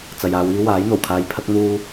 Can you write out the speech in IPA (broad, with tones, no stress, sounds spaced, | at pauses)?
t͡s ɐ˨ j aː˨˧ w iː˧ w aː˨˥ j n̪ o˨˩ w kʰ aː˧ j pʰ ɐ˥ k̚ n̪ uː˥